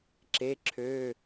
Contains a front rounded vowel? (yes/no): yes